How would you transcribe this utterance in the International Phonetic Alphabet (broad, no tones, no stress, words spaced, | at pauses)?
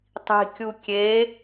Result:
tˤi̤kʲu kʲe